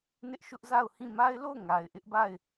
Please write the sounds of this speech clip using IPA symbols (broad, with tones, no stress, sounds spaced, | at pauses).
n ɪ˦ ʔ ʃ ʊ˦ ʔ z a˦˨ ʊ̯ h ĩ˦˨ m a˦ ɪ̯ l o˦˨ ʊ̯ ŋ a˨ ɪ̯ ʔ ɪ˦ ʔ b a˦˨ ɪ̯